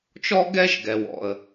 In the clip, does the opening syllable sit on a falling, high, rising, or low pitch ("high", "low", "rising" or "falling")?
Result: high